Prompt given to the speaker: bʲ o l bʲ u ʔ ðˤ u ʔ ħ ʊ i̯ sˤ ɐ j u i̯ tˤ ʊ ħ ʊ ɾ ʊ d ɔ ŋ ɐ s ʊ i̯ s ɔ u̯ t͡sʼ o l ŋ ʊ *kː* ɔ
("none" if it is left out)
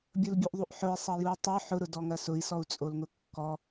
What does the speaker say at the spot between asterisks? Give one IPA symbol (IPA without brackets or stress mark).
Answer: kː